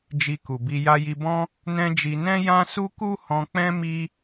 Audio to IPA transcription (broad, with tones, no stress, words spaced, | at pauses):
d͡ʒi˧ku˨bi˧ ja˧ji˧bɔ̃˦ | nɛ̃˦d͡ʒi˧ nɛ̃˦jã˦ su˦ku˦hɔ̃˧k͡pɛ̃˦ mi˦